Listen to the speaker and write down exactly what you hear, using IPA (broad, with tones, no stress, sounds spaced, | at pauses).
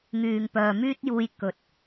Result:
ŋ yː˨ ŋ p œː˨ m yː˥ t̚ j uː˧ j k ɵ˨˥ t̚